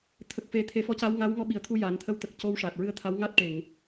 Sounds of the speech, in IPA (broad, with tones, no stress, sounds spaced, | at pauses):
t̪ʰ ə˨˩ k̚ f e˨˩˦ t̪ʰ e˨˩˦ f ɔ˧˥ c a˧˥ w ŋ aː˧˥ w ŋ ɔ˧ ɓ i˨˩ ə̯ t̪ʰ u˧ j aː˨˩˦ n t̪ʰ ə˧ w t̪ ə˨˩ k̚ c o˧ w ʂ aː˨˩ t̚ ɹ ɨ˧˥ ə̯ t̪ʰ a˧˥ w ŋ a˦˥ t̚ ʈ e˨˩˨ ŋ